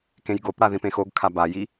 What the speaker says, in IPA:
kẽjɡopɽa ðĩpẽxoɡkʰa baji

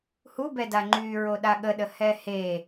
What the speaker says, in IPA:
hubɛda ŋ͡ǃy ɹoɗaɠəɗə hɛhe

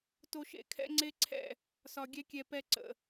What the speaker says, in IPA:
to˦ʃḛ˦ kʰɛ̰˦ŋ͡ǀe˦ǀʰɛ̰˦˨ | sɒ˧ɡʲɛ˦kʲɛ˧ pɛ˧ ǀə̰˨

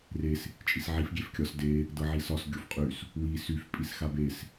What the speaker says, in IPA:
res | t͡ʃʼisʕif ɡʲefkʲɒs de | dɤʕisɒs ɡʲofqʼys | wi syf pʼisxabes

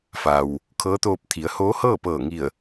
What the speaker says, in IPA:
fa˩w | kʰɤː˧˥t̪oː˧p̚t̪ʰi˩˧ə̯ hoː˧˥hɤː˥˨pɤː˧˩ ŋi˧˩ə̯

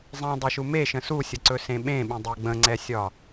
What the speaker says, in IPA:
zˤẽdˤɵʃu meʃə̃ susʲəǀɵsẽ ɓẽɓə̃dˤɛ ɡ͡bə̃ŋ͡ǀɛsʲɒ

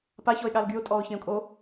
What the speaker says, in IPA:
paçɔɪ̯ɠal ɡyʊ̯tʼɔːʊ̯çẽʊ̯kʼo

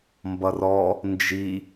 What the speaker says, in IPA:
mbʌrɔ | nd͡ʒi

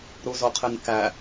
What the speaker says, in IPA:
ɾuzoqʰenkæ

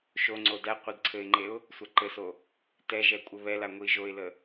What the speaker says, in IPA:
ʃoŋ͡ǀo dæ qʷedǀʰɘɪ̯ŋ͡ǃeʊ̯ | sʷaǃɘso | tɛʒɛ kʷʼɘβɛla ŋʷiʒoɪ̯lə

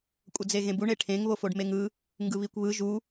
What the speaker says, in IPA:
kʷʼʌd͡zeɣẽbuɳ eʈʰẽŋ βofoɖmeŋɯ | ŋɡɯβikʷβɯ ʒu

